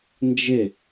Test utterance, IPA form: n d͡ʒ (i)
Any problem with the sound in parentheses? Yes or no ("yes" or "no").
yes